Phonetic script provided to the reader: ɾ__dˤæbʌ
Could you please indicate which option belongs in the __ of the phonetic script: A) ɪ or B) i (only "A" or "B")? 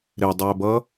A